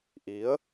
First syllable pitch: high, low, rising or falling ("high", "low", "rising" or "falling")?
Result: rising